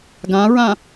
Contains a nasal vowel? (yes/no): yes